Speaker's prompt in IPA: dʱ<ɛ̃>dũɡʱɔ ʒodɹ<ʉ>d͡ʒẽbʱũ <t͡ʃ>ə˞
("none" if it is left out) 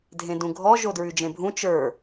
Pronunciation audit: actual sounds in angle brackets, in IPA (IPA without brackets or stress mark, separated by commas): ẽ, ʉ, t͡ʃ